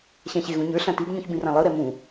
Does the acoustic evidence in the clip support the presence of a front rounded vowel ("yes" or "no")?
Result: no